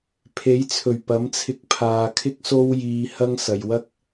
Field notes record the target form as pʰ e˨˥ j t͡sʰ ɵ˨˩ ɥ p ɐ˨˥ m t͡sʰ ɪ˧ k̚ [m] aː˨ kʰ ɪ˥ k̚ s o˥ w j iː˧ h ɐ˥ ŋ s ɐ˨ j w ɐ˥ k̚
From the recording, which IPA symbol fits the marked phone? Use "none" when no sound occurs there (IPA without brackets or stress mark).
pʰ